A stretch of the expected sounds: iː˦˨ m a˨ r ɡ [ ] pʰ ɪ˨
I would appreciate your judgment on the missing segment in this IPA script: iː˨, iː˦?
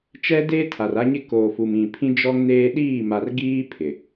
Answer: iː˦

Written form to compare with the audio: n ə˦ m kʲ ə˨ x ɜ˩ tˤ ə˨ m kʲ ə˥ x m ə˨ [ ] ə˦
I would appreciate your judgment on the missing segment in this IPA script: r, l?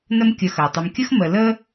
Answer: l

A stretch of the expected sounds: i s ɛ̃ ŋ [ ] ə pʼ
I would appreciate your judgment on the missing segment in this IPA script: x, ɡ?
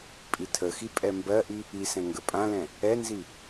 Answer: ɡ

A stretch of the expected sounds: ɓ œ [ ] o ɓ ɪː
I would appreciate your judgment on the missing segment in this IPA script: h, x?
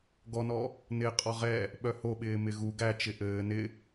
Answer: h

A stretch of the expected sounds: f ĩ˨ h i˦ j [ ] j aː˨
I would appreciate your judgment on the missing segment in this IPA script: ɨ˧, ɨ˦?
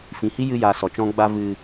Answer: ɨ˧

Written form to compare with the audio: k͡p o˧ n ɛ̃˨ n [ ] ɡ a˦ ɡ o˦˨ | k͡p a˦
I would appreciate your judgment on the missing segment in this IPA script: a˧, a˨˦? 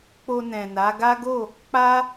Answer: a˨˦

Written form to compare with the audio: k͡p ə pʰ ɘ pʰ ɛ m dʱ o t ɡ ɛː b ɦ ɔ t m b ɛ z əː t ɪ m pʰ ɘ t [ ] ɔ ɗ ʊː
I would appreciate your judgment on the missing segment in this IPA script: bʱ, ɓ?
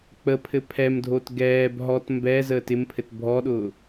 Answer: bʱ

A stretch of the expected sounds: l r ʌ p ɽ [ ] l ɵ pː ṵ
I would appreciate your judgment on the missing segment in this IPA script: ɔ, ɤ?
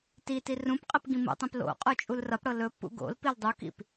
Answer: ɤ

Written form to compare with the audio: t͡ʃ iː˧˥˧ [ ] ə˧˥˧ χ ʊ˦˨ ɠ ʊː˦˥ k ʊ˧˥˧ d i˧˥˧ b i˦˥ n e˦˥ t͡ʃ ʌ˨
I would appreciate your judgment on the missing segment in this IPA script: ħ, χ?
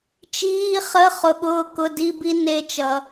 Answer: χ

